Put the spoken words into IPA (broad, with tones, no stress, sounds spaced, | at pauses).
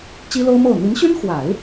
t͡ɕ i˥ l o˥ ʊ̯ m o˥˩ ʊ̯ n̪ i˧˥ n ɕ y˥ n x w a˨˩˦ ɪ̯